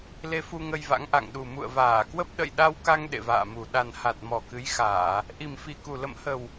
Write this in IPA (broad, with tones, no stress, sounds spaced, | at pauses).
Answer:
l e˧ f u˧ ŋ ə˧ j v a̰˧˥ ŋ ʔ a̰˧˨ ŋ ɗ u˨˩ m ṵ˧˨ ə̯ v aː˧˩ k w ə˦˥ p̚ ɗ ə̰˧˨ j ɗ a˧ w k a˧ ŋ ɗ ḛ˧˨ v a̰ː˧˨ m u˨˩ ɗ a˨˩ n h a˨˩ t̚ m ɔ˨˩ k ɨ˨˦ j x aː˧˩˨ | ʔ i˨˩ m f i˨˩ k u˨˩ l ə̰˧˨ m h ə˨˩ w